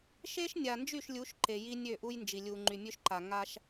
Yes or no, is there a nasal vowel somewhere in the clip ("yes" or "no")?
no